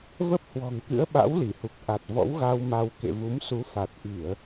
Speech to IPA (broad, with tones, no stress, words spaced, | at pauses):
və˦˥p̚hwɔ̤˨˩ŋkɨ̰˧˥ə̯ɓa̰˧˥w li˧˩hu˨˩k̚ ʔa˨˩t̚vɔ̰˧˥wɣa˧w ma˧w kḛ˧˨vu˨˦m su˨˦fa˨˩t̚ ʔi˧˩˨ə̯